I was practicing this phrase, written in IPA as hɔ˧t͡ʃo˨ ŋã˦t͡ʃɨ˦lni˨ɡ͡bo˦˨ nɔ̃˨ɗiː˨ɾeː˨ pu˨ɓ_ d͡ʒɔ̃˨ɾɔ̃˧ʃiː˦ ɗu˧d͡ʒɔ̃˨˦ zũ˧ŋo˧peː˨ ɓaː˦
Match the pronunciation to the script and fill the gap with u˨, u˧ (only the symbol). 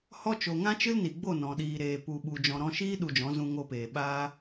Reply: u˨